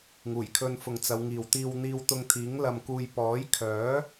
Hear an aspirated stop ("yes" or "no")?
yes